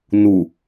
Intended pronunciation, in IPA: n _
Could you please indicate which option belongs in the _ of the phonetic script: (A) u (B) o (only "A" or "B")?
A